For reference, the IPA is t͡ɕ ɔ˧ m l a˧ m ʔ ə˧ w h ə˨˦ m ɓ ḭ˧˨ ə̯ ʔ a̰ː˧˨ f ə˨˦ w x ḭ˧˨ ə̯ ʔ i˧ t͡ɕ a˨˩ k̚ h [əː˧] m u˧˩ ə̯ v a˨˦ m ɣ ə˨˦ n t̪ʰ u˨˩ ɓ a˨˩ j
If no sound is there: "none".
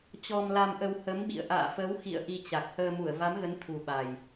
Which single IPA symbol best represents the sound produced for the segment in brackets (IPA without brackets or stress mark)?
əː˧